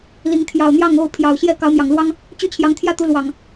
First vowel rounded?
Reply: no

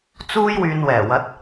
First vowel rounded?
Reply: yes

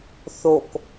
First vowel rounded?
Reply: yes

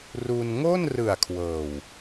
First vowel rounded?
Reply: yes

